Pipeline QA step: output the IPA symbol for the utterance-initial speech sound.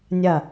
nʲ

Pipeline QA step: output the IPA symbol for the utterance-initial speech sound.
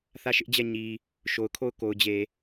θ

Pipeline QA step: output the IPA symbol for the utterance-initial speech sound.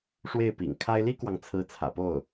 ʂ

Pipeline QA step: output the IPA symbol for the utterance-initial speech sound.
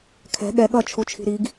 kʰ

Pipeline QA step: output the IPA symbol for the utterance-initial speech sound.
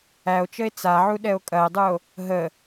æ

